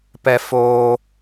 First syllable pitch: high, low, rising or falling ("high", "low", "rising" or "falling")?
high